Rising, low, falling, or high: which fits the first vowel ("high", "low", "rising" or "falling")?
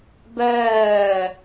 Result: falling